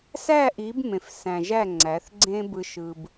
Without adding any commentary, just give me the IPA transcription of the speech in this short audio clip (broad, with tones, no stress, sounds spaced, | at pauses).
s æ˦˨ ʔ i˨˦ b m ẽ˨ f s æ̃˨ ʒ æ˦˨ ŋ͡ǀ æ˨˦ θ ɡ͡ǀ ẽ˦ b ɯ˦ ʃ ɯ˦ b